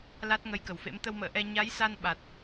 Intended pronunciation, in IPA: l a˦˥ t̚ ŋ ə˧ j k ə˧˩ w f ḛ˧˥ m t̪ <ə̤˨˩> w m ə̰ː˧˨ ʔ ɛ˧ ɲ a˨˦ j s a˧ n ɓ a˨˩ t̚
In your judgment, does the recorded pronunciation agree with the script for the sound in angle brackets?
no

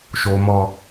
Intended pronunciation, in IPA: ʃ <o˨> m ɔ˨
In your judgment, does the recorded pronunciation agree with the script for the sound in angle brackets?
yes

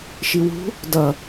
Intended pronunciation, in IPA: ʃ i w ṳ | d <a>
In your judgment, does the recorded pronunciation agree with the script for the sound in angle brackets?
no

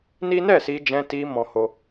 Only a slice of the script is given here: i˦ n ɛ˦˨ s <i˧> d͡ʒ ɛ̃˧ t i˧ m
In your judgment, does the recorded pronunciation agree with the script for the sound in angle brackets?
yes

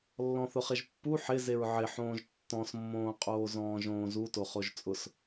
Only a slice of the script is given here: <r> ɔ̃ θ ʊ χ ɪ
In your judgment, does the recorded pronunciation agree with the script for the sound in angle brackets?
no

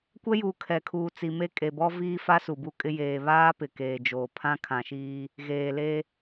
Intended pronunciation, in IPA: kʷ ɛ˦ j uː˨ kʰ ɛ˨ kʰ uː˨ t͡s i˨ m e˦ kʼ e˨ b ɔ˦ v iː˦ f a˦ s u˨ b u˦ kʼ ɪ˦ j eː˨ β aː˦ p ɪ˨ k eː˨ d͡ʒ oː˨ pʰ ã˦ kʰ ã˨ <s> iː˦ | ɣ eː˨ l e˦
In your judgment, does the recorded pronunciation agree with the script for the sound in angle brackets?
no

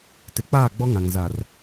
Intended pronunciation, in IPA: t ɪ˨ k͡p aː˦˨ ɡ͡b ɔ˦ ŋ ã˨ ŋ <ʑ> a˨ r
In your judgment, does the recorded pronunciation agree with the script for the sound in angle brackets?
no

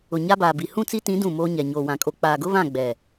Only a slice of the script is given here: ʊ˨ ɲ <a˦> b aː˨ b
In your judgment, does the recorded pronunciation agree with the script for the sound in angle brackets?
yes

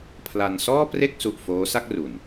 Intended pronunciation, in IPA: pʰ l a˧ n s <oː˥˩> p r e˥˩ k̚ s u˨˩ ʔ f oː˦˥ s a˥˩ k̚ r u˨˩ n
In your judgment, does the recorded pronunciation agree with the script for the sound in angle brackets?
no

